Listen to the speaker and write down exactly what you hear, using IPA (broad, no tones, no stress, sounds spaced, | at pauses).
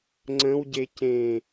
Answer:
ŋ͡ǀ ə̃ w ɟ e c ẽ